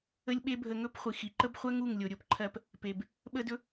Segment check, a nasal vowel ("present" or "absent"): absent